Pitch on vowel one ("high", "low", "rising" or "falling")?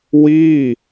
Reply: falling